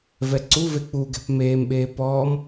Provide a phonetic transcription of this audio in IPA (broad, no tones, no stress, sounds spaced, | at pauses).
v ɛ ǀ u v e k͡p u ɡ ɛ̤ p m eː m ɓ eː p ɔː m